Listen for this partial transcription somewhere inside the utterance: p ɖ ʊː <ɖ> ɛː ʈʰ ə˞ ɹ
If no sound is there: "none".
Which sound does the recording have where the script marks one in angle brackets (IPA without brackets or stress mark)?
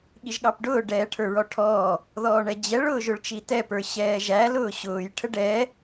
ɖ